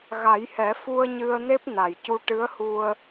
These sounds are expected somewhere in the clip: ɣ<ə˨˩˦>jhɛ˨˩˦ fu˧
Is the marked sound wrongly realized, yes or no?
yes